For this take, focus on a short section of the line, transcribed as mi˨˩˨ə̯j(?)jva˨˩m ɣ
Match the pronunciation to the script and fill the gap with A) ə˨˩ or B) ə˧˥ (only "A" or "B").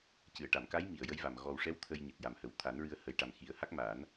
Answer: B